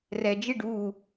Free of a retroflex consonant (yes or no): no